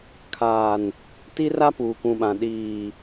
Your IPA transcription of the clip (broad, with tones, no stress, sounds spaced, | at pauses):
kʰ aː˨ n | t i˦ r a˦ p uː˨ k ũ˨ ɓ ã˨ ɗ iː˨